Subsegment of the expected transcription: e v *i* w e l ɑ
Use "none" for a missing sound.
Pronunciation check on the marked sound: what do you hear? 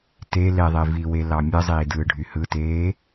i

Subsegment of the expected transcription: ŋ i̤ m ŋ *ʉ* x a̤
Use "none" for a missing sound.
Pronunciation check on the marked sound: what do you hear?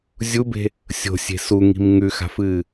ʉ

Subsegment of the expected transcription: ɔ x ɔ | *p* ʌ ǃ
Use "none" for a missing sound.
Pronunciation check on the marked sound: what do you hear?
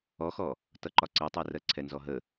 t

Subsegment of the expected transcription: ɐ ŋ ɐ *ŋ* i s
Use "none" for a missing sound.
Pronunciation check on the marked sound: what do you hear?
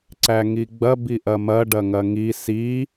ŋ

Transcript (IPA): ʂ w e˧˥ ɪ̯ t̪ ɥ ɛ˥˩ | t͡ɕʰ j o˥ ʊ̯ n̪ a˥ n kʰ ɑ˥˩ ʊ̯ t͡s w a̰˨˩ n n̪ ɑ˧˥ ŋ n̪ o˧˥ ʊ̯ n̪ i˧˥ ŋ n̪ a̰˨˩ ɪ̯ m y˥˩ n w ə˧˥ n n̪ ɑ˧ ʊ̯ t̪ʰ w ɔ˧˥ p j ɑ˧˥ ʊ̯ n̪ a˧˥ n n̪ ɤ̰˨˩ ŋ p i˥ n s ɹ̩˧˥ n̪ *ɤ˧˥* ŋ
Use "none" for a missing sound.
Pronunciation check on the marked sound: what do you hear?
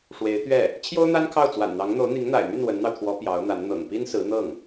ɤ˥˩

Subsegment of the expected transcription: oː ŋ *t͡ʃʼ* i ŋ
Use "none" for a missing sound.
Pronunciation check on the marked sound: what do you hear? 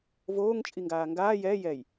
t͡ʃʼ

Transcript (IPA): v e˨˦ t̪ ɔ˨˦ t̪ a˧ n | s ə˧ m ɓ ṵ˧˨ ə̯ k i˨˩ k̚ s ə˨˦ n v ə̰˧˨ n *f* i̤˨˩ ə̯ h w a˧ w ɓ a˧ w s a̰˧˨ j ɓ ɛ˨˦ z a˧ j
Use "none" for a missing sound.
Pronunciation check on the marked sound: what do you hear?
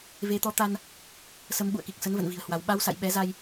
v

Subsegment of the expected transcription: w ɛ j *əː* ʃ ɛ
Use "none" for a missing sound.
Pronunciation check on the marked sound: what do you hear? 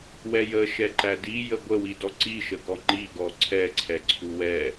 ə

